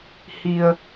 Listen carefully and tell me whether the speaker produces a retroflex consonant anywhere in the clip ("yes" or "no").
no